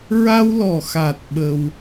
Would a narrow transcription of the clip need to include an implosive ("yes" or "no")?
yes